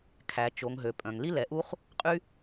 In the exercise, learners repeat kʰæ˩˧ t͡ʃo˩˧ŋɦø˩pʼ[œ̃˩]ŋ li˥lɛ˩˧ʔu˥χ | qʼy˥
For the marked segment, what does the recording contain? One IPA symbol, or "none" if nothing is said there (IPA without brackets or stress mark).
œ̃˩